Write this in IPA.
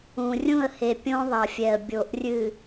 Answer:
ũ˨ rʲ ũ˦˨ ə̯ h e˨ pʲ õ˦ ðˤ ɐ˨ fʲ ɛ˨ ə̯ bʲ o˨ ʔ rʲ ɨ˨

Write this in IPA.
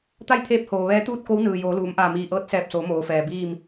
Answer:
t̪ a˥˨ j t̪ʰ eː˧˥ p̚ h oː˩ ʋ ɛː˧˥ t̪ uː˥˨ t̚ k o˧˥ w n ɯː˩ j oː˩˧ l uː˩˧ m ʔ aː˧˩ m iː˧˩ ʔ ɤː˧˥ t̚ s ɛː˧˩ p̚ s oː˩˧ m oː˩ f ɛː˩ b iː˥˨ m

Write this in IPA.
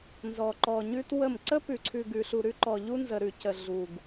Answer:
n z ɔ˨ ǃ ɔ˨ ɲ ʉ˦ t w ə˦˨ m ǀ ə˦ p ʉ˨ ǀʰ ʉ˨ ɡ ʉ˨ ɬ u˨ ɾ ʉ˦ ǃ ɔ˨ ʎ u˦ n z ə˨ ɾ ʉ˨ c ə˨ ɮ u˨ ɡ

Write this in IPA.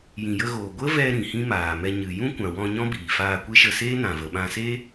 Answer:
j ĩ˨ j ə˧ ɣ oː˨ ɡʷ ə˦ v ɛ˧ ɾ ĩ˨ h ĩ˦ m aː˨ m ɛ˧ ɲ ɨ˨ j ũ˦ kʷ ã˨ w ɔ̃˧ ɲ ɔ̃˦ b iː˨ f aː˧ kʷ e˦ ʃ ə˧ s eː˦ n ã˨ v ə˨ ɓ ã˧ s eː˦

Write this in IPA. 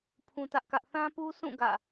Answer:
pʰ ũ˦ t ä˦ ʔ k ä˦ ʔ θ ã˦ p u˦ s ũ˦˨ ɡ ä̰˦˨

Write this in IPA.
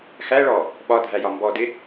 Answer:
x æ ɭ ɔ | ɓ ɒ dʱ æ j ɒ m b ɔ d ɪ

